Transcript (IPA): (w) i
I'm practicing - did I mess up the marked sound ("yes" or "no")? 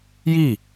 yes